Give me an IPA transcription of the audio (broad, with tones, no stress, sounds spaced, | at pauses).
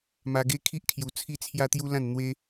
m a˧ ɡ e˦ kʰ i˦ ʔ kʰ j u˨˩ t͡sʰ i˦ t͡sʰ j a˦ t̪ j u˦ l ã˥˧ n n̪ w e˦